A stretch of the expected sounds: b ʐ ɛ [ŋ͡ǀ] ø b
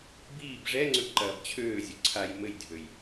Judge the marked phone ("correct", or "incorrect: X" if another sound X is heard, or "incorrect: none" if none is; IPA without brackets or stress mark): correct